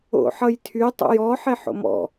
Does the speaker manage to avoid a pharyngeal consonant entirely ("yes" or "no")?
no